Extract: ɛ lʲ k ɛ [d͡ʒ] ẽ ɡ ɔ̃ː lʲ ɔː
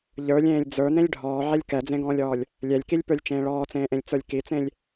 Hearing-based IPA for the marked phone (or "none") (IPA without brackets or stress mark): d͡z